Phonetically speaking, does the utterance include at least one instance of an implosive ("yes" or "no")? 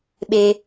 yes